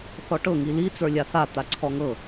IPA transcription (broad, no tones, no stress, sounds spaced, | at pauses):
θ ɔ ʈ ɤ ŋ i l i t͡s ə˞ lʲ a θ a t̪ a ǀʰ ɔ ŋ ɤ